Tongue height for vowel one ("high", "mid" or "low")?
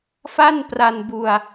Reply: low